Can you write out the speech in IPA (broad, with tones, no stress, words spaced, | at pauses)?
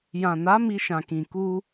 jã˨na˨˦ mi˧ʃã˨kĩ˨ ku˧